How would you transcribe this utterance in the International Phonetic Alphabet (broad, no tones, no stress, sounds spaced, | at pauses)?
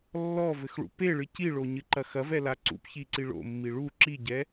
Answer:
lː ɔ v ɘ x ɭ ṵ p e ɭ ɨ c i ɭ o ɲ ɨ ǃ ɐ x ɐ v ɛ l a ǀ ṵ p ç i ǀ i ɭ o̰ mː i ɭ u ǁ i ɟ ɛ